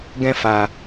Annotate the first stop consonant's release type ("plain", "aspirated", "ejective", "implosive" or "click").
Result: plain